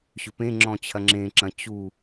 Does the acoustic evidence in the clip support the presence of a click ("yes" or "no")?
yes